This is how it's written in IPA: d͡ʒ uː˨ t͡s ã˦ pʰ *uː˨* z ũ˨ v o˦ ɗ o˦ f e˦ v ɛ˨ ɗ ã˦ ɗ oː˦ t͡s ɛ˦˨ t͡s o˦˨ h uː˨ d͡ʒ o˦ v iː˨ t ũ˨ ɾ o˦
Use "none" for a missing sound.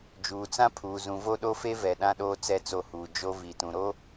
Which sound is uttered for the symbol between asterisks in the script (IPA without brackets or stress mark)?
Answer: uː˨